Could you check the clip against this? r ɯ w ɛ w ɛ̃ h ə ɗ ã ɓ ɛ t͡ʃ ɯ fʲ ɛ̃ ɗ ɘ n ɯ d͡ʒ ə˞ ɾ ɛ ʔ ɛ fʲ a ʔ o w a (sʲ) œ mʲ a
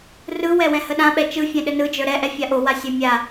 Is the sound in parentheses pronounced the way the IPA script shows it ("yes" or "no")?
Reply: yes